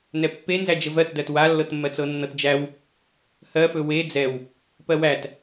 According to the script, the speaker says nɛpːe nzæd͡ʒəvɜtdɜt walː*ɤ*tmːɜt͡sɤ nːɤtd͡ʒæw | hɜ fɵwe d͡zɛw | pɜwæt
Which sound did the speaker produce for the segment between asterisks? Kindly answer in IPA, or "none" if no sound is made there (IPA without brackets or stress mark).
ɤ